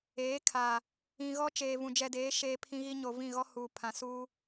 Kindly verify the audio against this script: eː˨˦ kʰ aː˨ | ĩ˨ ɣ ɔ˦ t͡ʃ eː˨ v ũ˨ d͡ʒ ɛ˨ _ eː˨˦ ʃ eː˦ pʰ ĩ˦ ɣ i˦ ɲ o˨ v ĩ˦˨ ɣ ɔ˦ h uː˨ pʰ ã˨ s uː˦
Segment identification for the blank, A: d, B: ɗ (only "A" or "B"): A